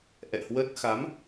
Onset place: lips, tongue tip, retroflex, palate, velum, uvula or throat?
throat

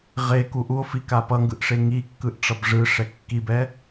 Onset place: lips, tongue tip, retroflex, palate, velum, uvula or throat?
uvula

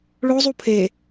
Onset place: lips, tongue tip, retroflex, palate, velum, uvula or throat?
retroflex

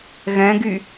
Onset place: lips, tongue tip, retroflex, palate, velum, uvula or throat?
velum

